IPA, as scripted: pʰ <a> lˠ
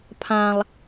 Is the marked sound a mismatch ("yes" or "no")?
yes